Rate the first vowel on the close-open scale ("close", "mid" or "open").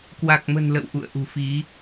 open